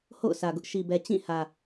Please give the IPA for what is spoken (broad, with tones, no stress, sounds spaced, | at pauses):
h o̰˦˨ ʊ̯ sʰ ä˨ ɡ ʊ˦ ʔ ʃ i˨ b ɛ˨ t͡ɕ ĩ˦˨ h ä˨